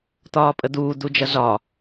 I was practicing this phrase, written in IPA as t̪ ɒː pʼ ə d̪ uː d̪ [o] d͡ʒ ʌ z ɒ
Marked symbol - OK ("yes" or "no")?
no